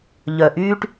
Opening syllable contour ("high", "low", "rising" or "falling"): low